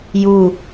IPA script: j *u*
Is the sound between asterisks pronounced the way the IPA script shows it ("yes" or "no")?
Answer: yes